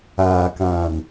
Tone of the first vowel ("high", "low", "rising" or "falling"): low